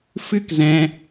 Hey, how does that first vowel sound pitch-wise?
high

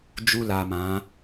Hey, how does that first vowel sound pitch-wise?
high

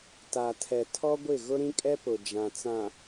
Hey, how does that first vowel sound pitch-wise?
low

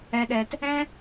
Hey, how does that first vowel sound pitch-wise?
high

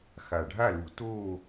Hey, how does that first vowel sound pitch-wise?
low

